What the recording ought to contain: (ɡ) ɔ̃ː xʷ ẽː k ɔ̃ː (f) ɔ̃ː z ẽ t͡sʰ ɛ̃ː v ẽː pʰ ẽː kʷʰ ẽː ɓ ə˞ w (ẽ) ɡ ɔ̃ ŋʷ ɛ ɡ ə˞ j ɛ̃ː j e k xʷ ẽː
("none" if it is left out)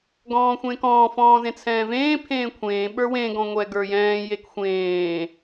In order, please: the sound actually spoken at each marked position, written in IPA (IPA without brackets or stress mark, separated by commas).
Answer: ɡ, f, ẽ